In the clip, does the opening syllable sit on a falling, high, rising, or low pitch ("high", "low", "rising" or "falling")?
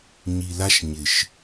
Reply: low